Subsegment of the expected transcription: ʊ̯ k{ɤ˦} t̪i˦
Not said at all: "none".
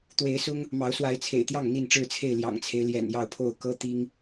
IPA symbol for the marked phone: ɤ˦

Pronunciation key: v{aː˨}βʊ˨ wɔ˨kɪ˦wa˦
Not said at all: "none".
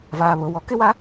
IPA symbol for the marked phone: aː˨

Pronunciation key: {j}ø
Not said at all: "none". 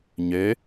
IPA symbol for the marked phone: ɲ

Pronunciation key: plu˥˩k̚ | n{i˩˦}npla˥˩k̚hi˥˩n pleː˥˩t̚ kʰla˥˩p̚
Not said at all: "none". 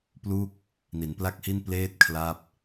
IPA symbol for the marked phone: i˩˦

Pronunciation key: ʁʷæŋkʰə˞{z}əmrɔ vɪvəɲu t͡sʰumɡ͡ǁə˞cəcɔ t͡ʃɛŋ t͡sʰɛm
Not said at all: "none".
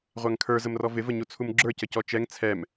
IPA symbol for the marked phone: z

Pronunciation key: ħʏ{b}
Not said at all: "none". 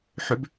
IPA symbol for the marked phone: b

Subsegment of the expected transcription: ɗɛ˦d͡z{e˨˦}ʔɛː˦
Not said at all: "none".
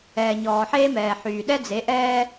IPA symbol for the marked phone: e˨˦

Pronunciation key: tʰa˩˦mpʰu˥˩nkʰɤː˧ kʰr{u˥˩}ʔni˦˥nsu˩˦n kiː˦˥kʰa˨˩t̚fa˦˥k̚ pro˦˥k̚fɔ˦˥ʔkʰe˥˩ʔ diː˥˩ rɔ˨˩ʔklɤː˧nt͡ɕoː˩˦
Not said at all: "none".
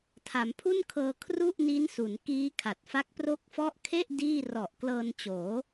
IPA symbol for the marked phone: u˥˩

